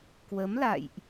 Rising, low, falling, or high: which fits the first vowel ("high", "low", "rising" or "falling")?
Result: rising